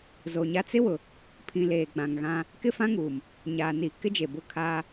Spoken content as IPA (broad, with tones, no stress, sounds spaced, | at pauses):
z o˨ ɲ a˦ t͡s ɪ˦ w ʊ˨ | pʰ ĩ˨ l eː˨ ɡ͡b ã˨ ŋ ɣ ã˦ | k ɪ˦ f ã˦ ŋ uː˨ m | ɲ aː˨ n i˨ k ɪ˦ d͡ʒ e˨ b ʊ˦˨ kʰ aː˦